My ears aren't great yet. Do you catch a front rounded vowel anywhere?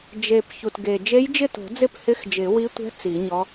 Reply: no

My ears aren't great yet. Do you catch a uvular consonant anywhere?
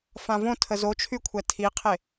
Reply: yes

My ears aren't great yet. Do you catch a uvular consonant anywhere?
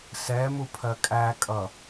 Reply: no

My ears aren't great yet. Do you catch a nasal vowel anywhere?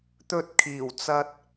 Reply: no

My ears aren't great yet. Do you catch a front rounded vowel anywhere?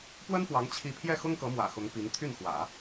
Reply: yes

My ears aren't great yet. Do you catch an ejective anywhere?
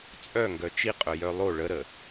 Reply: yes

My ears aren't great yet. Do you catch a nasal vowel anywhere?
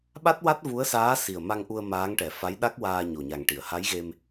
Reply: no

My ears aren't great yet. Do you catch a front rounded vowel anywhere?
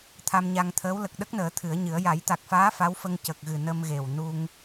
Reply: no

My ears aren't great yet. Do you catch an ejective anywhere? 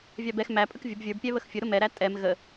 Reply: yes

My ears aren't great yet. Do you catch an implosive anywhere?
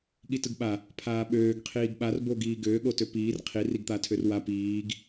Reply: yes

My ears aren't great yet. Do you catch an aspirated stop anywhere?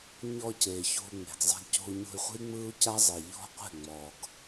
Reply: no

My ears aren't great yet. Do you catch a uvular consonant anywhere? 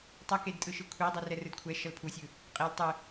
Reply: yes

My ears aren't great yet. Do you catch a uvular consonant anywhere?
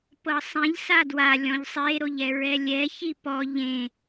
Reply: no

